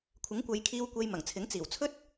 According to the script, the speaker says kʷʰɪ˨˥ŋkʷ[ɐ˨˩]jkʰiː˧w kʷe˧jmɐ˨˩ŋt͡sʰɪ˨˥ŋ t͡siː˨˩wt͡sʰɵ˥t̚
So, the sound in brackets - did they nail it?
no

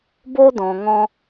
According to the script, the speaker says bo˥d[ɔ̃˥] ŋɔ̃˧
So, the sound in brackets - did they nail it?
no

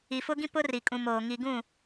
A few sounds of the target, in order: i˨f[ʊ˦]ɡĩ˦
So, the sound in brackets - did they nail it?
yes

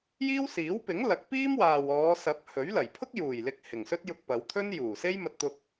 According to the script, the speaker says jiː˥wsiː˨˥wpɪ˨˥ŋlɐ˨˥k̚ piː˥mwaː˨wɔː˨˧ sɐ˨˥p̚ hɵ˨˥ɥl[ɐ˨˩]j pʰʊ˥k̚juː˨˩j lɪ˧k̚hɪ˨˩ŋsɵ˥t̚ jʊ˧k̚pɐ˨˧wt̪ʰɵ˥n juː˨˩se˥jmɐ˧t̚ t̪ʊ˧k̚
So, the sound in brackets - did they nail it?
yes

